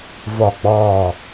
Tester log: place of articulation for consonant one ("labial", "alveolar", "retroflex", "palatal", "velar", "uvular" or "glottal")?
labial